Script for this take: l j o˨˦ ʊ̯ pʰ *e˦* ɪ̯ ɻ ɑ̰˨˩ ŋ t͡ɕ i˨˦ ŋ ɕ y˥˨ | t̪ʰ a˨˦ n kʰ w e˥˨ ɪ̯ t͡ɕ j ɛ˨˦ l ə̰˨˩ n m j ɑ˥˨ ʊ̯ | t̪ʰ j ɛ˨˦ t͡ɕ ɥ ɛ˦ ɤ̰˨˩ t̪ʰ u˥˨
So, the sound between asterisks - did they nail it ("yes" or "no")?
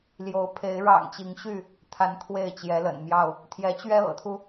no